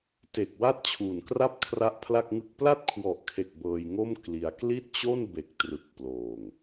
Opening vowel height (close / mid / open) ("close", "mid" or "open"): mid